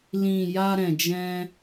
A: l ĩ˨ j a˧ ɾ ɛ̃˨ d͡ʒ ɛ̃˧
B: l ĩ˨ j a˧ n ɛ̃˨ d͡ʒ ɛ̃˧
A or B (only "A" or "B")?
A